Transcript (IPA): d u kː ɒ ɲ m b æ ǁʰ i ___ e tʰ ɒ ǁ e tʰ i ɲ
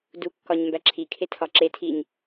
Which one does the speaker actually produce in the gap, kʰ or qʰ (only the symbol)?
kʰ